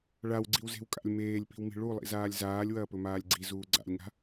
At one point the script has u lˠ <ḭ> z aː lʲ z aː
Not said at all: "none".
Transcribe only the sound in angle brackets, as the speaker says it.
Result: ḭ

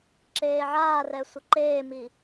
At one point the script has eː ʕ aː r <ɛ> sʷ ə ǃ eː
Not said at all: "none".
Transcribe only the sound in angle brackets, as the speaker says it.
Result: ɛ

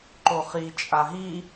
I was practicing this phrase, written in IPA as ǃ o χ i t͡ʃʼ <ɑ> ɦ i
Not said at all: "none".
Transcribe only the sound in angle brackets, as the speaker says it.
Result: a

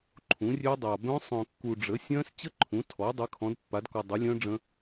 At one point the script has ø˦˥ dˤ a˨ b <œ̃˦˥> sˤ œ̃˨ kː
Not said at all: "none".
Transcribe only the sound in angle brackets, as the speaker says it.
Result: œ̃˦˥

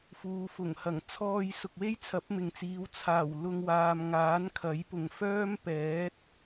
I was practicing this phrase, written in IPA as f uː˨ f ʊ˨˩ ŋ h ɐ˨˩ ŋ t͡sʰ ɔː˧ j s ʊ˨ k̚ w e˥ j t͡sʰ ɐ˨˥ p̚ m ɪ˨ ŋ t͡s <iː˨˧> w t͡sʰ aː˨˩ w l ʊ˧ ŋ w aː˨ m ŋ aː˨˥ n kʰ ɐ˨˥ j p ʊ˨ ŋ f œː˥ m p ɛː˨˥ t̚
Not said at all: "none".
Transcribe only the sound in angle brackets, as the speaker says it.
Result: iː˨˧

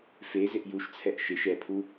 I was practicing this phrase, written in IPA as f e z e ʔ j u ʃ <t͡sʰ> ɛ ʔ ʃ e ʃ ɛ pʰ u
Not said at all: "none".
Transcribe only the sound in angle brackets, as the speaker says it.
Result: t͡sʰ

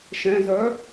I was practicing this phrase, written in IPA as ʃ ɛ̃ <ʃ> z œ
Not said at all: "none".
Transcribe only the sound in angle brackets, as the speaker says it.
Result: none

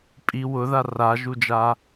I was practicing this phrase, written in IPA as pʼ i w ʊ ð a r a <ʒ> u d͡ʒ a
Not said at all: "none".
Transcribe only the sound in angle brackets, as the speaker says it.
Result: ʒ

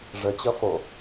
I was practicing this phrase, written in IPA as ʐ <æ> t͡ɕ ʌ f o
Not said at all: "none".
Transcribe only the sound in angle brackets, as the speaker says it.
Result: ə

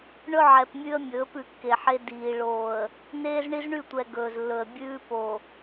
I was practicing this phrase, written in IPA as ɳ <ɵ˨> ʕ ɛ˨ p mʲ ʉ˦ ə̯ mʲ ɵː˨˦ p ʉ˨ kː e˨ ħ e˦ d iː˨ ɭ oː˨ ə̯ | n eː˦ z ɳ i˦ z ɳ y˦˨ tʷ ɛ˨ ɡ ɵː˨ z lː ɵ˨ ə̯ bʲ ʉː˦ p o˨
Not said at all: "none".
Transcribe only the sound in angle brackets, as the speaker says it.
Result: ɵ˦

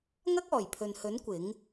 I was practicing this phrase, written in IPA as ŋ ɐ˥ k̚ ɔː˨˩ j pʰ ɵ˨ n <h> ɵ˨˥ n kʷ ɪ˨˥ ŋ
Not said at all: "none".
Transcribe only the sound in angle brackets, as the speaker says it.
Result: h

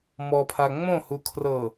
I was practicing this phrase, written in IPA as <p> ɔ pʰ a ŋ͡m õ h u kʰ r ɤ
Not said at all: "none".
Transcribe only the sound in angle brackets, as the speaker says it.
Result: m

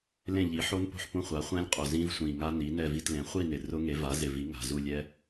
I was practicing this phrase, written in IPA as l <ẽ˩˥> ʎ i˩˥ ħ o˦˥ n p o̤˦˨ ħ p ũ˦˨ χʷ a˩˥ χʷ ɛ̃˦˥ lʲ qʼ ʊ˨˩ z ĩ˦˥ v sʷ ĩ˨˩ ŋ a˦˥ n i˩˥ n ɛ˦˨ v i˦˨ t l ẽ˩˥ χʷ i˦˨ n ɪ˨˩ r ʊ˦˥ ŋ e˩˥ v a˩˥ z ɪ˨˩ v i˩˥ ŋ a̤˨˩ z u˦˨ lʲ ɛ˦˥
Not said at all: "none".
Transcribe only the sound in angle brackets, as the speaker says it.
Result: ẽ˦˨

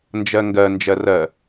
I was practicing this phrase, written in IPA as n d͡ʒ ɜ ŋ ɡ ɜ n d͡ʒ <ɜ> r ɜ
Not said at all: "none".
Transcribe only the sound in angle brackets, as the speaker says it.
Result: ɜ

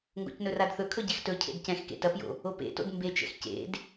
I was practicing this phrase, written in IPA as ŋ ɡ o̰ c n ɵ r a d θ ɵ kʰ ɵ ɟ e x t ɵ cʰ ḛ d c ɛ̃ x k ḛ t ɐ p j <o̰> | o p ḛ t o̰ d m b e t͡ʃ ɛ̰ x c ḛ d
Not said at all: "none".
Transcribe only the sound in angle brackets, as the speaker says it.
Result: o̰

